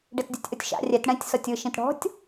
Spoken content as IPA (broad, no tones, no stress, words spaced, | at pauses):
ɖetdʲutʲʔotʲʃa̰ rʲɛt ɽɛ̃tʲ sɔtʲɯ ʃĩtɽɔ̤tʲ